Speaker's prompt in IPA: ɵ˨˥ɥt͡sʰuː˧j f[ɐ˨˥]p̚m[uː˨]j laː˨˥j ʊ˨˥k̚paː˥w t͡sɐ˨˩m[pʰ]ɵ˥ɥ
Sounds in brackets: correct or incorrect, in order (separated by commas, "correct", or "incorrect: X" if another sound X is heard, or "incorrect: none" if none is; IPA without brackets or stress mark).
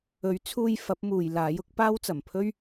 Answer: correct, correct, correct